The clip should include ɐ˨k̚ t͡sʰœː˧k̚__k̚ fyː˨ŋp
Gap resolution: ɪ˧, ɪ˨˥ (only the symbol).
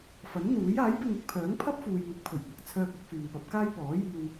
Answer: ɪ˧